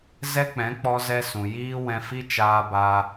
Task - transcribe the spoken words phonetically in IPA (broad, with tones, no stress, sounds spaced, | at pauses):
z ɛ˦ k͡p ɛ̃˨˦ k͡p ɔ˧ z ɛ˧ s ũ˨ j iː˦ w ɛ̃˧ f i˦ t͡ʃ aː˧ b a˧